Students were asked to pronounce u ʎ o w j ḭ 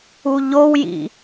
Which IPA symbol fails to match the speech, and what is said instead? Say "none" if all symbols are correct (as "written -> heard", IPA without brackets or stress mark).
none